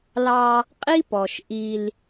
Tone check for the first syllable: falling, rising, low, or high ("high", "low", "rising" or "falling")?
high